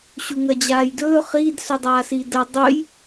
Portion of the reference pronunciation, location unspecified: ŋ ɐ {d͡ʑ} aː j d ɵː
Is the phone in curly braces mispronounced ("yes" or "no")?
no